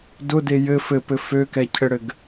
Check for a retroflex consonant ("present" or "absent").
present